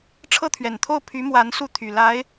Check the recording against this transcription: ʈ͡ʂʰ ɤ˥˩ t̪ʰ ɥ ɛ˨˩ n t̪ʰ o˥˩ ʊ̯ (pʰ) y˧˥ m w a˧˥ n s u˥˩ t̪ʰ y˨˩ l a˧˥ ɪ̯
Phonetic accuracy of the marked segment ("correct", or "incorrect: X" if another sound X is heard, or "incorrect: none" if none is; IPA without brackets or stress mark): correct